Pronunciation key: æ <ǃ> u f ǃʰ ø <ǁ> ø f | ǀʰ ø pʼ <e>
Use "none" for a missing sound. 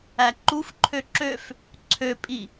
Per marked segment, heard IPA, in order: ǃ, ǁ, i

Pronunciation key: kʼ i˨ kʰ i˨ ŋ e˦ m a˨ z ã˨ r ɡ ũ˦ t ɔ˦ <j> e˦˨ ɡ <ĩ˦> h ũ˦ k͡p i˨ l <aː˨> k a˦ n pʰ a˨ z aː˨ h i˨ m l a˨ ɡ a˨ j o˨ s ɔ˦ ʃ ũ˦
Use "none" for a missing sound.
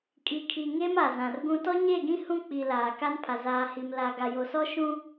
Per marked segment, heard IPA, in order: ɲ, ĩ˦, aː˨

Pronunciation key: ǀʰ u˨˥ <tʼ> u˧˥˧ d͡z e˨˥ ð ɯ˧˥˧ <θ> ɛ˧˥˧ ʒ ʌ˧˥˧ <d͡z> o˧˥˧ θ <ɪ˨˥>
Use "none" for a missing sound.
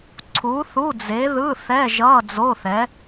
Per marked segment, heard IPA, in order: θ, θ, d͡z, ɛ˨˥

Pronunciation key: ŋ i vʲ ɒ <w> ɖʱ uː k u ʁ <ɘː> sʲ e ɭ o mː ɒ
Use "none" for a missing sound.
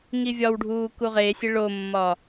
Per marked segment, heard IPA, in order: w, eː

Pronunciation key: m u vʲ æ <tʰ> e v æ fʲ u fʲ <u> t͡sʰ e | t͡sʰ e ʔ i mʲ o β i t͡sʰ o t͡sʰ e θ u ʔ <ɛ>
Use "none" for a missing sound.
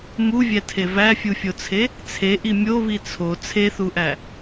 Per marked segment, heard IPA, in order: tʰ, o, æ

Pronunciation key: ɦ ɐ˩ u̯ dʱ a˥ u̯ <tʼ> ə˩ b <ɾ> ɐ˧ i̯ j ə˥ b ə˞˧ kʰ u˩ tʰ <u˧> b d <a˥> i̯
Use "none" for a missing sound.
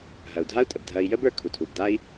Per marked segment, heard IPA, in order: tʼ, dʱ, u˩, a˥

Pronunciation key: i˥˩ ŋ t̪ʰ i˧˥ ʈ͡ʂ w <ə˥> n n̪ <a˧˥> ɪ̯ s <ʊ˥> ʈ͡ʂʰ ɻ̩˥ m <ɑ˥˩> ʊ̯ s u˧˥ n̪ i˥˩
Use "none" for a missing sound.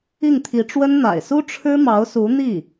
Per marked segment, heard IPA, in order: ə˥, a̰˨˩, u˥, ɑ˧˥

